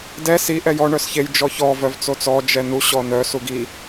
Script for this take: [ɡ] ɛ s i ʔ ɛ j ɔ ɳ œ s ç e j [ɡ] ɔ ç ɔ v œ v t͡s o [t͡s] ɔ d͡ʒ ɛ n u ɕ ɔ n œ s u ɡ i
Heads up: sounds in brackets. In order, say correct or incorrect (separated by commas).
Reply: incorrect, incorrect, correct